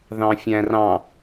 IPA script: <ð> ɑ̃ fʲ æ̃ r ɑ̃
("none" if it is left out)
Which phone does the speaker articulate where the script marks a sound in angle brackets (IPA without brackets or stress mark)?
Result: ð